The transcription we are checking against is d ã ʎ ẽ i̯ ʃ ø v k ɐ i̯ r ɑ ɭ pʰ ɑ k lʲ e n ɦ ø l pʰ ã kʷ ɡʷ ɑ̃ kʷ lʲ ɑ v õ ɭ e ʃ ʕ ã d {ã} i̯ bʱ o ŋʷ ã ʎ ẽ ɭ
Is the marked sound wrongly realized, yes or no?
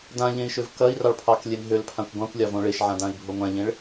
no